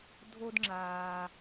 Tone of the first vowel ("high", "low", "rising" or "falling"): high